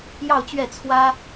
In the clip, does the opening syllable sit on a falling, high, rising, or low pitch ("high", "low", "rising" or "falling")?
falling